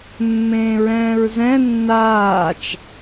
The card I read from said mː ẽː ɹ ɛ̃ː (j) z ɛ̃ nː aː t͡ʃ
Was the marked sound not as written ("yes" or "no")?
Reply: yes